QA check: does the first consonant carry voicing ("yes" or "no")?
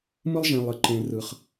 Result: yes